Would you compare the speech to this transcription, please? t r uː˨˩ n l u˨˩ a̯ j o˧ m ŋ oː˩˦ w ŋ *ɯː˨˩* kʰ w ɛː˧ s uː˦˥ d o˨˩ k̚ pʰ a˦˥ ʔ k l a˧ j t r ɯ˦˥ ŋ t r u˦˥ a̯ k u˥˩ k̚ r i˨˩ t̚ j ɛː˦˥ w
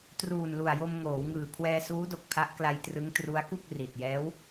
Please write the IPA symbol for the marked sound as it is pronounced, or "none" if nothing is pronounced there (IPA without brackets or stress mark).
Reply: ɯː˨˩